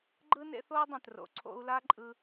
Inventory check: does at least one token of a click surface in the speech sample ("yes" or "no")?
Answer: yes